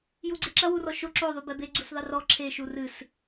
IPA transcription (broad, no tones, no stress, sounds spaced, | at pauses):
j u ɡ͡ǀ e ǁ ɐ w u r ɔ ʃ o ǁ o ðˤ u b ɛ b e ɡ͡ǀ u s ðˤ ɘ r ɔ ǁʰ e ʃ u r ɨ s